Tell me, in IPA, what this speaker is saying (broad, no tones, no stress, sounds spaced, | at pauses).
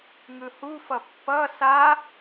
ŋ ɯ h u f ʌ pː ʌ s a